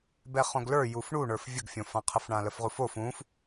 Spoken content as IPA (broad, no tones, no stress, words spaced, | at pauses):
bɛχõɡlə˞ jufɳuɳə˞f vʲəɡfʲõfãqʰəf ɳãləfʁufof ũf